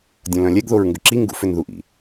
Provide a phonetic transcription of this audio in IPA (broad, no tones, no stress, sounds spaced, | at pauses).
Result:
dʲ ɐ̃ l œ̃ lʲ ɛ ɡ ð o ɹ ŋ ɡ ʏ ǁ i ŋ ɡ ṵ f ʏ n ð u ʔ ḭ